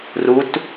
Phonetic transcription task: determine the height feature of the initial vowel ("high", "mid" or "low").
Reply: high